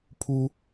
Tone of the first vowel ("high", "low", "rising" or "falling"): high